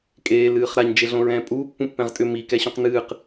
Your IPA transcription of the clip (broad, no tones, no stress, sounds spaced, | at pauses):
kʼ eː l ɨː χ ɾ a ɲ d͡ʒ e ɮ õ ɹ ɛ̃ː pʼ uː pː ũ pː ɛ̃ ʁ tʼ ʏ m i k ɛ ɕ ũ q n ɨː q